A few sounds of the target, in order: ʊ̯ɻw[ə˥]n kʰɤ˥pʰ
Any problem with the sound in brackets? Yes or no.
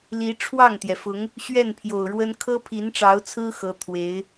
no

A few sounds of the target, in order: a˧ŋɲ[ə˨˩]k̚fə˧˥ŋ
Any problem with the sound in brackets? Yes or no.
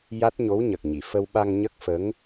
yes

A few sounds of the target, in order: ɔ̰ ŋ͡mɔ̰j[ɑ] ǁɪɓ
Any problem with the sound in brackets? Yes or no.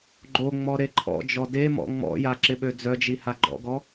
yes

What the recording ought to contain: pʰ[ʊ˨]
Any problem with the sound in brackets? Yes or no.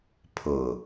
no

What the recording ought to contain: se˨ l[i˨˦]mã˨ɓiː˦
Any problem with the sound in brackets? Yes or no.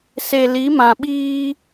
no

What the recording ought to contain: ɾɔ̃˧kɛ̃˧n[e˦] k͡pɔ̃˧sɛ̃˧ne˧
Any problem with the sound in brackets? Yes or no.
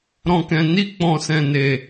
yes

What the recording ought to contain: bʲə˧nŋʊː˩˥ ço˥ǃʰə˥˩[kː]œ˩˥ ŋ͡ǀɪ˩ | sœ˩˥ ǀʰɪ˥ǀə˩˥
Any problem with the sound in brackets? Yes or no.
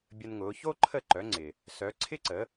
yes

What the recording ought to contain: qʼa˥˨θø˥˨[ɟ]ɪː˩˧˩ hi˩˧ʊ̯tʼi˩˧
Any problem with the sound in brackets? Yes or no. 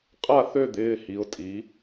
yes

